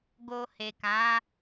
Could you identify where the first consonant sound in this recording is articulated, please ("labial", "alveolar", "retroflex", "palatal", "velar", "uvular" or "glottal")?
velar